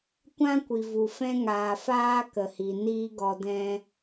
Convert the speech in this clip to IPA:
kʷ ã˦ kʷ i˨ v u˨ f ɛ̃˦ ŋ aː˨ f aː˦ k ə˨ h i˨ n iː˦ ɡ ɔ˧ d ɛ̃˦

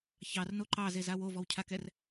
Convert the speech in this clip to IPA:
ç ɑ r n o ǃ ɑ z e z a w o v ɔ w cʰ a k ɛ r

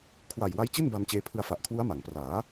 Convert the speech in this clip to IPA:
kʰ w a˨˩ j w a˦˥ j t͡ɕ i˥˩ n b a˧ m t͡ɕ eː˧ pʰ ɯ˧ a̯ f a˨˩ ʔ kʰ w u˦˥ a̯ m a˩˦ ŋ p r aː˩˦

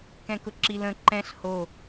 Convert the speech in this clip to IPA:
k ɛ̃ k ʊ ǁ i l ə̃ ǃ ɛ̃ ɬ h o

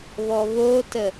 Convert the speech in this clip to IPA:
β ɔ β o t ə

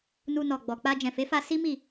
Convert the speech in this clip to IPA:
n u˧ n ɔ˨ ɡ͡b ɔ˨ k͡p a˧ d͡ʒ ɛ̃˨ f e˨˦ f a˧ s i˦ m i˦˨

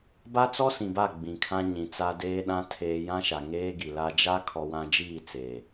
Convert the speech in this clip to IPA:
b a˦ t͡s ɔ˦ s ĩ˨ b a˦˨ ɡ͡b ĩ˨ kʰ ã˦ ɲ ĩ˨ t͡s a˦ d eː˦ ɗ ã˦ tʰ eː˨ j ã˦ ʃ a˨ ŋ eː˦ ɡ i˨ l a˦ d͡ʒ a˦ kʰ ɔ˦ w ã˦ d͡ʒ iː˦˨ t͡s eː˨

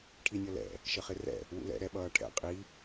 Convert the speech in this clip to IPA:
ʈʰ i nʲ ʌ l ɛ̰ | ʃ ə χ ɪ r ɛ̰ | w ṵ l ɛ̰ ɾ ɛ ɓ ʌː ʈʰ ɛ̰ qʼ i

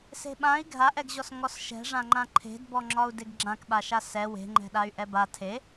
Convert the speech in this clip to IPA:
s e̤ ɓ ã i̯ ɡʱ a ʔ ɛ ɡ ʑ ɔ s ŋ ɔ s ʃ ɛ̤ ʐ ã ŋ͡ǃ ã ǃʰ e̤ d b ɔ ŋ͡ǁ ɒ u̯ d e ɡ ɡ͡ǁ ã k ɓ a ʃ a s ɛ w e̤ ŋ͡ǃ ɛ̤ ɗ a y̯ ʔ ɛ b a tʰ e

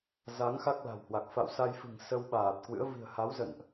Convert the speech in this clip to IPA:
z a˨˦ ŋ x a˦˥ k̚ l a̤˨˩ w h w a˨˩ k̚ f a̰˧˨ w s a˧ j f ɨ̤˨˩ ŋ s ə˧ w ɓ aː˨˩ t̚ k w ɨ̰˧˥ ə̯ v i̤˨˩ ə̯ h a˨˦ w z ə̰˧˨ n ʔ

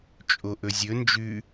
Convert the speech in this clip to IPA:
t͡ʃʼ o ʔ ɵ zʲ ɵ n d͡ʒ ʉ

